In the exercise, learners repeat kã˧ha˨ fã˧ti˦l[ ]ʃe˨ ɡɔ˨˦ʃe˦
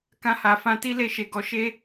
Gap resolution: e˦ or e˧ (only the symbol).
e˧